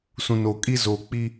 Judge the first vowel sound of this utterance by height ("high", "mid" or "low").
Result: high